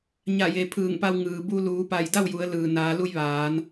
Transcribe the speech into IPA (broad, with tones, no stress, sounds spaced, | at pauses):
ɲ a˧˩ j e˩ pʰ ɯː˧˩ ŋ p a˧ w ŋ ɯː˩ b u˧ l uː˩˧ p a˧˩ j d a˥˨ w j u˩˧ ə̯ l ɯː˩ n aː˩˧ l u˧ j ʋ aː˩˧ n